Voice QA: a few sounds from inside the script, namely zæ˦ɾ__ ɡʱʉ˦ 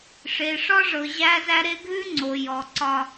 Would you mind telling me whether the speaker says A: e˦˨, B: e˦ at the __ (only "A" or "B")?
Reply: B